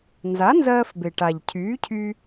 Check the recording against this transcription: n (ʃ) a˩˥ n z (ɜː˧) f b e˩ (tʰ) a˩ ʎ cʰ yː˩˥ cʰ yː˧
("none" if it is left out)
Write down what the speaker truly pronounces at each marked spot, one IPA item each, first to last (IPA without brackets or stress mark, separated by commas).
z, ɜː˧, ʈ